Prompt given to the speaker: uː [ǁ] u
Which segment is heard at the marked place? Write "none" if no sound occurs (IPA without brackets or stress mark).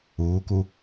k